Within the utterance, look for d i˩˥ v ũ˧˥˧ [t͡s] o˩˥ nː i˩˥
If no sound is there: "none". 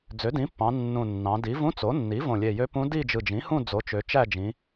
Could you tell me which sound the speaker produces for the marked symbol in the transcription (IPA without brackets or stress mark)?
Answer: t͡s